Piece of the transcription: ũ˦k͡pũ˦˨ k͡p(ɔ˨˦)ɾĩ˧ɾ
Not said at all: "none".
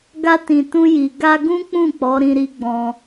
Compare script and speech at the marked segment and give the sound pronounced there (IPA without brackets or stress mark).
ɔ˨˦